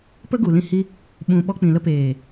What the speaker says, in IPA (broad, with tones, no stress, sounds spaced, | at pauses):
p ə˦ ɡ u˨ l ĩ˧ h i˧ | ɓ ũ˨ ɓ ɔ˧ k͡p ĩ˨ l ə˧ p eː˨